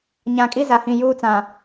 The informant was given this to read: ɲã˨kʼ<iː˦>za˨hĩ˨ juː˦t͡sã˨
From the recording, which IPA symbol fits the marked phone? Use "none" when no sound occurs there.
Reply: i˦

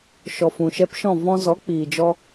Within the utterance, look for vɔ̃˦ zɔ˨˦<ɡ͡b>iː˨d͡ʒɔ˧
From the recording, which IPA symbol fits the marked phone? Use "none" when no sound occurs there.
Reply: k͡p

